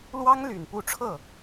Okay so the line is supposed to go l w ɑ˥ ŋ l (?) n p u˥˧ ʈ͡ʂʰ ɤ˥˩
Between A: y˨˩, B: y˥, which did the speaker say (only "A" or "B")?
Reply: A